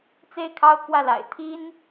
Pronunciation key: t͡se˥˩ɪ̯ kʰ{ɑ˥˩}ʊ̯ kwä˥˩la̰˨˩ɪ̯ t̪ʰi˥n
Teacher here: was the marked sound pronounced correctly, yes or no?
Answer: no